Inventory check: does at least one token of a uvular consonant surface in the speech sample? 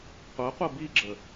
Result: yes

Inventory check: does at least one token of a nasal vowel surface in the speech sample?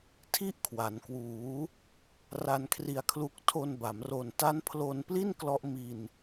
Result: no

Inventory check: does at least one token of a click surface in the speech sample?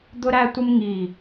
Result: no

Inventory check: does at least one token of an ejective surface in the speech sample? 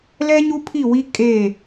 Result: yes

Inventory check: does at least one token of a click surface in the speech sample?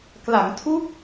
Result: no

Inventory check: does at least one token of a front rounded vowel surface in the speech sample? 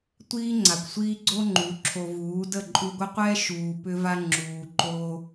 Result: yes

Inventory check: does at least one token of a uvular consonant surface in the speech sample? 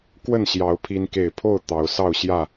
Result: no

